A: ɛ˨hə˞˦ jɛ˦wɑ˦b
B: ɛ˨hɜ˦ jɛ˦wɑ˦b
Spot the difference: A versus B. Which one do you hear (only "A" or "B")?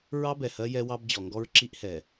B